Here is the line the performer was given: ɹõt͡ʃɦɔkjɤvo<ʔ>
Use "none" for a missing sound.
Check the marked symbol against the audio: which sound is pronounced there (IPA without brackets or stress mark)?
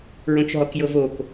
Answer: k